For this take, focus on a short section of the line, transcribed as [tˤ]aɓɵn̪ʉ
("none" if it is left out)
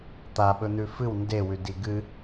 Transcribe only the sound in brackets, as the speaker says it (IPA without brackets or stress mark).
t̪